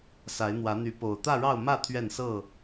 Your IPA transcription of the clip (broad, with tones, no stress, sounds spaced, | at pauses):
s a˨˦ ɪ̯ n̪ w ä˨˦ n̪ y˨˦ p o˨˩ ʊ̯ t̪ ä˥˨ ɻ ɑ˥˨ ʊ̯ m ä˥˨ t̪ʰ ɥ ɛ˥˨ n s ɤ˥˨